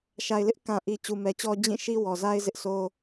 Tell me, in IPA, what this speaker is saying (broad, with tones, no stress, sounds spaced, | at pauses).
ʃ a˨ ɪ̯ l ɪ˦ ʔ k ã˨ ʔ i˨ t͡ɕ u˨ m ɛ˨ t͡ɕ ɔ˦ d͡ʑ ĩ˦˨ ʃ i˦ w ɔ˨ z a˦ ɪ̯ z ɪ˦ ʔ s o˦